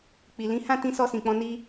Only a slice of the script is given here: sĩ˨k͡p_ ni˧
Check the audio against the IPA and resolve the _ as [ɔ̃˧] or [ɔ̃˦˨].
ɔ̃˧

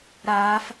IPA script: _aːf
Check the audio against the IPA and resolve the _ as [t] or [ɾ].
ɾ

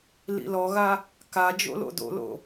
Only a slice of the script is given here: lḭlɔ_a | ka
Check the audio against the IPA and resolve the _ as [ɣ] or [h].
ɣ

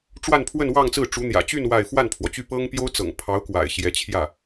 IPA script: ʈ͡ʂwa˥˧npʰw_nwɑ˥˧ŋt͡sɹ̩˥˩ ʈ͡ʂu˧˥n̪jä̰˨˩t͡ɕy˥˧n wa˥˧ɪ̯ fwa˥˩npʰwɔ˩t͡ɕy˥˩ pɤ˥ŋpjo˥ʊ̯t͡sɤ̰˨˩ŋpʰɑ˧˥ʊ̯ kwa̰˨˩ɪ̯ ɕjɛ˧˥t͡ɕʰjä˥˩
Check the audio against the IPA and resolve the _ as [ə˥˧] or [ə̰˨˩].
ə˥˧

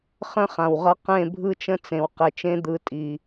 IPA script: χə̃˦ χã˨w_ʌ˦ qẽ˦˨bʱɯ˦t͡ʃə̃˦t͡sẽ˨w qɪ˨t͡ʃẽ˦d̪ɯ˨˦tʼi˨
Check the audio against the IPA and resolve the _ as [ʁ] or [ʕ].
ʁ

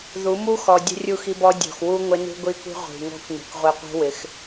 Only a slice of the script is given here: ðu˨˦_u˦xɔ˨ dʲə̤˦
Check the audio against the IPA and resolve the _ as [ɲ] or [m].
m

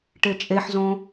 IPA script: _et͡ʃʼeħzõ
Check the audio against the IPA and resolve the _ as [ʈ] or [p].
ʈ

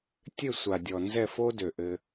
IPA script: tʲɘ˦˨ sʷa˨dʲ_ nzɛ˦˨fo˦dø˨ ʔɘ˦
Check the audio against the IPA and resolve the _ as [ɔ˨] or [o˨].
ɔ˨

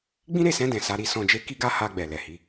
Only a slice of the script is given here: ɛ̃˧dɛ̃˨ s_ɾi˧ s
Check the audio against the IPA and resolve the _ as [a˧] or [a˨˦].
a˧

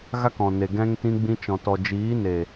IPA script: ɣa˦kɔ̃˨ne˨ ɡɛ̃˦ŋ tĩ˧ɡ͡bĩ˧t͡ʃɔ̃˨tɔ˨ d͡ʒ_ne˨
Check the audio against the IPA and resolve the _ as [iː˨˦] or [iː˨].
iː˨˦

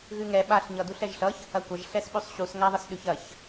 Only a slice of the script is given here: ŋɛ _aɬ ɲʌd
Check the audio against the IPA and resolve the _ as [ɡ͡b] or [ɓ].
ɓ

